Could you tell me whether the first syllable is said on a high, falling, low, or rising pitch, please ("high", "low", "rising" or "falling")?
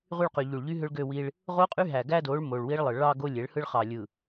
falling